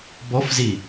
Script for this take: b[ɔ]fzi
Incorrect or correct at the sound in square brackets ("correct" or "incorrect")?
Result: correct